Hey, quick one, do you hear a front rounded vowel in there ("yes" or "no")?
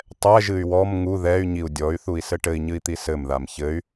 yes